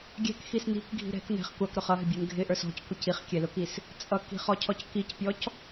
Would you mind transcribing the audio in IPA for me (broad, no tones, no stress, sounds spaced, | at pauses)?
ɡʲ ɛ̤ k x i s n i̤ k ɡʱ i̤ ɾ ɛ̤ k n ɛ̤ χ kʷ ɑ k ɾ ʊ χ ʌ ɦ ɪ bʲ ə˞ n ɡʱ ɪ ʔ ə˞ s ɔ̤ c kʷ ɪ c i χ kʲ ɛ l ʊ k i s | t͡sʼ ʌ k i̤ χ ɔ cʰ ɔ c k i c pʲ ɔ c